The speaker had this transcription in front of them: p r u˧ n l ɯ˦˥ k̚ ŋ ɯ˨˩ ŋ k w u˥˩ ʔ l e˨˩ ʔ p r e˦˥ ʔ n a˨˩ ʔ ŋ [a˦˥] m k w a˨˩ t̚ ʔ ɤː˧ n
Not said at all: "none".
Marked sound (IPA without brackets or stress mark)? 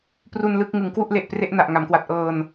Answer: a˩˦